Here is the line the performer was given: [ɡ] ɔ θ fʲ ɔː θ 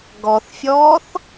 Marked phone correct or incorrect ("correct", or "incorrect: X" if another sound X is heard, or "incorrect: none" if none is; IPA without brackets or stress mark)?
correct